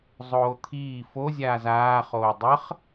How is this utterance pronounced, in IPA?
zˤ oː t̪ʰ iː f o zʲ aː z aː χ oː dˤ ə χ

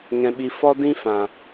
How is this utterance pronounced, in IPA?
ŋ ɛ̃˧ ɓ i˧ f ɔ˦ d ĩ˦ f ã˨

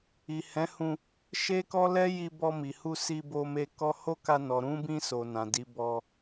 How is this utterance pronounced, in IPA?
i˨ h ɛ̃˨˦ h ũ˧ | ʃ e˦ k ɔ˦ l ɛ˦ j i˧ b ɔ˧ m i˨ h u˧ s i˧ b o˧ m e˧ k ɔ˧ h o˦ k a˧ n ɔ˨ ɾ ũ˨˦ b ĩ˧ s o˨ n ã˨ d i˨˦ b ɔ˧

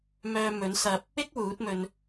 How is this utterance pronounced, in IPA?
m œː˧ m ɵ˨˥ n s ɐ˧ p̚ | ɪ˥ k̚ w uː˨˥ t̚ m ɵ˧ n

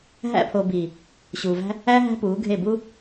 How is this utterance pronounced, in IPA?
ɦ æ̰˧ pʰ o˨ b i˨ | ɕ uː˨ v æ̤˦ | æ˦ ɦ æ̤˦ p uː˨˦ ɡʱ e˦˨ b u˦

